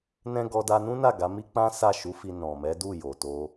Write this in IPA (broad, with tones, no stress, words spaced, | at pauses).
nɛ̃˦ ɡɔ˧da˧nũ˦na˦˨ ɡa˨˦mi˦ k͡pã˦sa˦˨ʃu˨˦fi˧ nɔ̃˨mɛ˨˦ du˦˨jo˨ to˧